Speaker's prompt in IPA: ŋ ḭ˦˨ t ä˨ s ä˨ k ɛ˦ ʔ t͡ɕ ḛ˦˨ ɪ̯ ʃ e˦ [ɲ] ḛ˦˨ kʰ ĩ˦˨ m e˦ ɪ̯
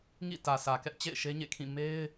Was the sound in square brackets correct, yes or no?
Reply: yes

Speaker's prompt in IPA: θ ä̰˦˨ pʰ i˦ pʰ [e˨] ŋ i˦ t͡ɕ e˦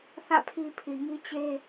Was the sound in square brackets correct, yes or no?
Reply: no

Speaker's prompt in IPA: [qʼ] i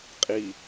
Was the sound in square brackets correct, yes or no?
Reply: yes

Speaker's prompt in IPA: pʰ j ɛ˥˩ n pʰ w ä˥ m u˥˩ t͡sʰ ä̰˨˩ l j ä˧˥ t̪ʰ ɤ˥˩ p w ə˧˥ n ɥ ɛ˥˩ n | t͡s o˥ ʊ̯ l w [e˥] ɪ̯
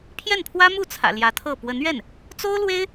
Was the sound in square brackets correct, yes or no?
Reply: yes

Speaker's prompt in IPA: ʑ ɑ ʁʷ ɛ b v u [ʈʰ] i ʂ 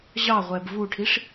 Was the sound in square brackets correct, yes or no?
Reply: yes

